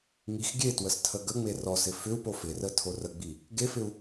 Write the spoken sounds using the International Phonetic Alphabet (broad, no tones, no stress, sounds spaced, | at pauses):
ŋ i x ɡʲ e t w ə s tʰ ə ɡ ə ŋ͡m e r ɔ s ɪ f ʏ u̯ p o f ɪ r ə tʰ o r ə ɡ͡b i | ɡ e f ɪ u̯